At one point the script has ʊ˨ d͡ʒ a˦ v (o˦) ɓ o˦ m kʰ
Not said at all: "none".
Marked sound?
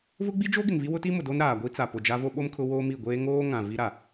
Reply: o˦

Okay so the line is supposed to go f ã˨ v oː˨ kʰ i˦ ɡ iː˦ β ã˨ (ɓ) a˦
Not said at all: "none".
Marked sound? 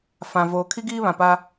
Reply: p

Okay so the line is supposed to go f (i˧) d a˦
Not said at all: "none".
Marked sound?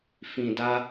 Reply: ĩ˧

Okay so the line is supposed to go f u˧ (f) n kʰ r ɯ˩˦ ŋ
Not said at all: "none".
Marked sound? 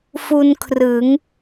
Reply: none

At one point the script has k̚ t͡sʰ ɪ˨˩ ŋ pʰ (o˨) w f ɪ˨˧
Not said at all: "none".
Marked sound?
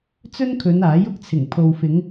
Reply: o˨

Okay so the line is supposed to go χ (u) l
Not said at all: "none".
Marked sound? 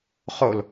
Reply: o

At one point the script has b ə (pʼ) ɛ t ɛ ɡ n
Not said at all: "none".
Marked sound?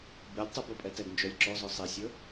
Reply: pʼ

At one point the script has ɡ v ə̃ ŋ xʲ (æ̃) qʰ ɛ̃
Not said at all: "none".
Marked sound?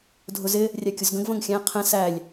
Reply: æ̃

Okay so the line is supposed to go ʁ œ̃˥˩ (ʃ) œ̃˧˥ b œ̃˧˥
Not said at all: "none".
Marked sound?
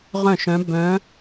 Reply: ʃ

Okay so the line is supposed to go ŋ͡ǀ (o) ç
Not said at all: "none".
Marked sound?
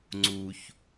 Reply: u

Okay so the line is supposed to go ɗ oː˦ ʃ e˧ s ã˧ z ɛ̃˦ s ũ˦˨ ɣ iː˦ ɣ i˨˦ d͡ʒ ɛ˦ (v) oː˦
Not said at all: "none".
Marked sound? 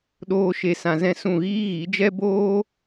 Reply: b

